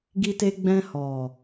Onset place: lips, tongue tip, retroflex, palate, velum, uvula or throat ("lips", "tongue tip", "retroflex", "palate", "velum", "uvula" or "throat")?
velum